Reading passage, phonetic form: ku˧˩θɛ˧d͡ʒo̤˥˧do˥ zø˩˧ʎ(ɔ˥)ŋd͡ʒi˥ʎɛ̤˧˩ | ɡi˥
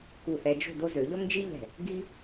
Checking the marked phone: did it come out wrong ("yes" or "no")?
no